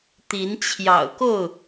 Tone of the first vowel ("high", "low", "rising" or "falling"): rising